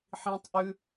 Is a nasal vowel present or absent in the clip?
present